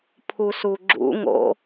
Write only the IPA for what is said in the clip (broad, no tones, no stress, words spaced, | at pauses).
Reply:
pʰusuɡ͡ǁṵ ŋo̰